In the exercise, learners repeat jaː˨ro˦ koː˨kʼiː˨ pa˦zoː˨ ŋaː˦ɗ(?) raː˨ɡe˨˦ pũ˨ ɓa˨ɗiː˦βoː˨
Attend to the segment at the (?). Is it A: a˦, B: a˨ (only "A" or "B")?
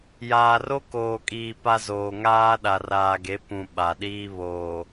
B